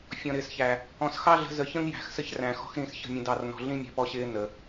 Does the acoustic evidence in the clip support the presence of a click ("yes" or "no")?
no